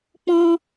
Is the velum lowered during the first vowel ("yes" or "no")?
yes